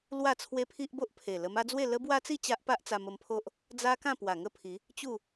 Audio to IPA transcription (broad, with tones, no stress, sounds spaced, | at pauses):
l w a˥˧ t͡sʰ w e˦ pʰ i˦ ʔ b o˦ ʔ pʰ e˨˩ l ə˧ m a˦ d͡z w e˥˧ l ə˦ b w a˦ t͡s i˥˧ t͡ɕ a˦ ʔ p a˦ ʔ t͡s a˧ m ə˧ m pʰ o˦ ʔ | d͡z a˦ k ã˥˧ p w a˨˩ ŋ ə˥˧ pʰ i˨˦ | t͡ɕ u˥˧